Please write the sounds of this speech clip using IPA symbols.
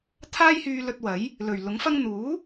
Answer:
t̪ʰaː˥jhyː˧lɵ˧t̚wɐ˨˥j | lɵ˨˩ɥlʊ˨˥ŋ fɐ˧ŋ n̪uː˨˥

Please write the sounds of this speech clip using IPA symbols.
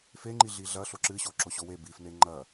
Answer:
feŋ͡ǃi ɮiɮɐ ɬoǁɨɕo ǁoɕowe bifne ŋ͡ǃɐ

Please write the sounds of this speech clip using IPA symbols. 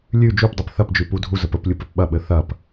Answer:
lʲʉ d͡ʒupdˤep θɐpd͡ʒʉ pudʱuzəp əplʲup ɘpɓɐɓɘ θɐp

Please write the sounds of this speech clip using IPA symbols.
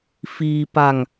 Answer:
fiː˧ pa˧ŋ

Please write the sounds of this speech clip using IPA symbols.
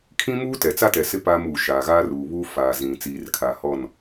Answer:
kʰĩ˦muː˦tɛ˨t͡sa˦ tɛ˨sɪ˦ paː˦muː˨ ʃaː˨ɣaː˦ruː˨βuː˦ fa˨zĩ˨ t͡siː˨rkʰa˨hɔ˦˨n

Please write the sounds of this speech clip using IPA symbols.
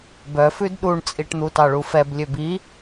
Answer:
bœfʉd ɗuɳt͡sʼiʈ n̪utɑɭufɛb lʲøbi

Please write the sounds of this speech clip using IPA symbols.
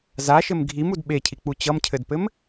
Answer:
zaʃɘm ɡʱimud ɓecʰik͡pu t͡ɕʌmcʰɘdpɘm

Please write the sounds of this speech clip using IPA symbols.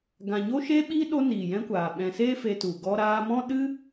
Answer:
ɡã˨ɲo˦ʃe˦ ɓi˦ ɗo˦niː˨jɛ̃˦kʷaː˨ ɓɛ̃˨seː˦ fe˧tu˨ ɡɔ˧ɾaː˧mɔ̃˦ɗɨ˦

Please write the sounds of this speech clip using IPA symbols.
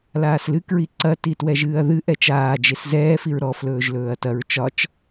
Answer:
laːslɨ kɹiǀɐ titwɛʒɨːɐ̯ðɨ ʔɛt͡ʃaː d͡ʒeszɛː fiɹɾɔ flɵːʒlɵːɐ̯tɐɹ t͡ʃɒt͡ʃ

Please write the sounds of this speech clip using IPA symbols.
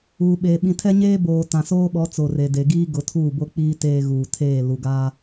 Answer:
uː˨ɓeː˨ ɓĩ˨tʰɛ˦ ɲeː˦boː˨ tã˨soː˦ɓɔ˨˦ t͡so˨re˨ de˨ ɡiː˦ ɡʊ˨˦tʰuː˦˨bo˦k͡piː˦ teː˦ ɣuː˨tʰeː˦˨ lu˨ɡaː˦

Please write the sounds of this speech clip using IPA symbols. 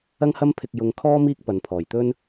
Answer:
ɐ˥ŋhɐ˥m pʰɪ˧k̚jʊ˧ŋkʰɔː˥ miː˥k̚pɐ˨˧npʰɔː˨˩jt̪ɵ˥n

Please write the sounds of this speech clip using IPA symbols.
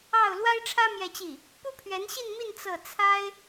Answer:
ɑ˥˩ʊ̯ lwa˥ɪ̯ʈ͡ʂʰä˥ mjɛ˥˧t͡ɕi˥˩ | pu˥pʰɥɛ˧˥nɕi˥˧nmi˥˧n t͡sɤ˥˩ t͡sʰa˥ɪ̯

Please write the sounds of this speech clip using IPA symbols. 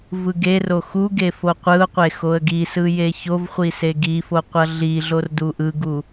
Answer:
vɯɡero xuɡe foqʷɯʊ̯qʷe xoə̯ɡisɯ jeçovχʷi seɡifo qʷʌɮiɮor duʔɯɡu

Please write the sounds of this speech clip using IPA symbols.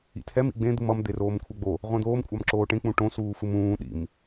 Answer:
ḭtʰɛm ḭɡ͡bẽ d̪ɯmʌm d̪eroːmkʷʰɛɡ͡bo | ʁʷɛ̃d̪oːm kʷʼamǁoːʈẽ k͡pũʈõ suːfɯmũː ɗḭm

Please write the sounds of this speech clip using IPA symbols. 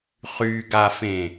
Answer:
χyɡafẽ

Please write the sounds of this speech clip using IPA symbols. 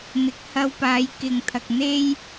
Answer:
n̪ɪ˨˥k̚hɐ˧w paː˨˧jkɪ˨ŋt̪ʰɐ˨k̚ n̪e˥j

